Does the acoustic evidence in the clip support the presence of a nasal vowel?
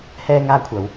no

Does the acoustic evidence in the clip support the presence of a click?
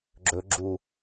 yes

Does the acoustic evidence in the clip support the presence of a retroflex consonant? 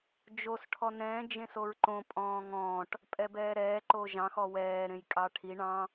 yes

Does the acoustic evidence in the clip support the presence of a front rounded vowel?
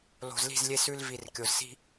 no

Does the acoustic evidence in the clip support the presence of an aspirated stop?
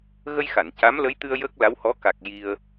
no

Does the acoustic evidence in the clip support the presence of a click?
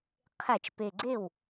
yes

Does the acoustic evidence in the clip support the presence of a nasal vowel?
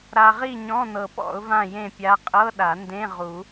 yes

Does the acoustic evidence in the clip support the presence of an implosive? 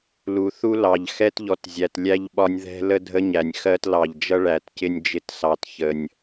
yes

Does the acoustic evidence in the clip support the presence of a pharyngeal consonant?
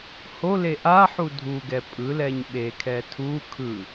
yes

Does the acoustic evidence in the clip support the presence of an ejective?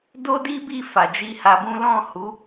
no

